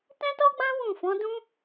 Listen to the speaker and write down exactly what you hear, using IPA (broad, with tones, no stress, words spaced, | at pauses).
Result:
tɛ̃˦tɔ˦ɡ͡bã˦ wũ˦˨fɔ̃˨˦ dũ˦